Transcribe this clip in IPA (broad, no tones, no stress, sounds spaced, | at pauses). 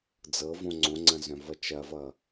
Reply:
d͡z ɤ v õ ŋ͡ǀ õ ŋ͡ǀ ɐ̃ z œ̃ v ʌ t͡ʃ ɐ v ʌ